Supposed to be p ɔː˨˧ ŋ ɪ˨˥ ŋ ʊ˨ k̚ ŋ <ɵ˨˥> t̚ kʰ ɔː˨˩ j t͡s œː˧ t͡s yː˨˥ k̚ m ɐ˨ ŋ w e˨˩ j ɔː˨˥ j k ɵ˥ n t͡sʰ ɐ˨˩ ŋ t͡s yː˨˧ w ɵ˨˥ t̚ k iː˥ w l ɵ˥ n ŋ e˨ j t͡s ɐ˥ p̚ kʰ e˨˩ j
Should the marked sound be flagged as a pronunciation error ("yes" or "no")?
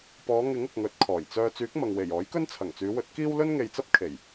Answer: no